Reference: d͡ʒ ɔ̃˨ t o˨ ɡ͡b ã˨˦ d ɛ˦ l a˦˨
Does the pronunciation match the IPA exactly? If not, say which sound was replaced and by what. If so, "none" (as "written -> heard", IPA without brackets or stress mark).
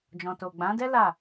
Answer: none